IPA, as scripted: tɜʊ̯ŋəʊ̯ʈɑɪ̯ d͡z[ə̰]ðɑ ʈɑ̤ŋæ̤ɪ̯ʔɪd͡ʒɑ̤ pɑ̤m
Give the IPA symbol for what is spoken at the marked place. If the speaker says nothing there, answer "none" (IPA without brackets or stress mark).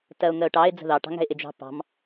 ə̤